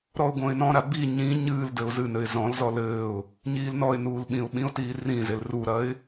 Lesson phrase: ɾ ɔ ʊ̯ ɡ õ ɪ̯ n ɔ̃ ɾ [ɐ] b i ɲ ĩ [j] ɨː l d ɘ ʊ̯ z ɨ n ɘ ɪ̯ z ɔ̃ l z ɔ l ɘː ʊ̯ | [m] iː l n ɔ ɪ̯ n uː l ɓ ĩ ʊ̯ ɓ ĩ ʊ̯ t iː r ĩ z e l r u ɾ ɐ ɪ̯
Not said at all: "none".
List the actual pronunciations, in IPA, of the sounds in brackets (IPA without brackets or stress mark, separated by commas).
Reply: a, ɲ, ɲ